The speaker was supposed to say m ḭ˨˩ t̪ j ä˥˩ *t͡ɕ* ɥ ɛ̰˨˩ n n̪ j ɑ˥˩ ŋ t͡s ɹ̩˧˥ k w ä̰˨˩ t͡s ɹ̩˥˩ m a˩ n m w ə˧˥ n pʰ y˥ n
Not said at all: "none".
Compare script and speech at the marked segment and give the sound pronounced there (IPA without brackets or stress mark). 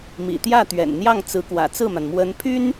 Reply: t̪